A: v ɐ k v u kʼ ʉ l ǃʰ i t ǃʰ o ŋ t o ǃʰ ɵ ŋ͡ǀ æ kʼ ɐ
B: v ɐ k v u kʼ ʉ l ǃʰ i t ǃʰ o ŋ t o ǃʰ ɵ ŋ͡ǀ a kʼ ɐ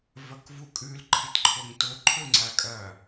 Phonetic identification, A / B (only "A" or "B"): B